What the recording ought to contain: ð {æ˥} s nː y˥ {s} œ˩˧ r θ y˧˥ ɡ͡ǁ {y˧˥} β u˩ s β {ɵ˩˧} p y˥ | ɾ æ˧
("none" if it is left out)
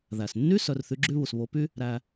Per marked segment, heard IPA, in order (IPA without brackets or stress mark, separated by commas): æ˩, s, y˥, o˩˧